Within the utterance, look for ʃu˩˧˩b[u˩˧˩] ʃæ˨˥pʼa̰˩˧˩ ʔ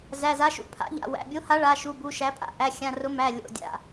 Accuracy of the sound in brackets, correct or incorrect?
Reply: correct